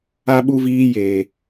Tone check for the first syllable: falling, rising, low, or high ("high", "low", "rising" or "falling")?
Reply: high